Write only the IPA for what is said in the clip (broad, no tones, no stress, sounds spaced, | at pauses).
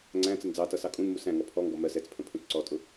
ŋ͡ǀ æ̃ t͡s ə n d͡z ɑ t ʌ s ɑ kʼ ũ n m u s æ̃ ŋ ɔ pʰ ɔ ŋ ɡ ɔ m ɜ s ɛ t͡s pʰ ə̃ pʰ ũ t͡s ǀ ɔ tʼ ʊ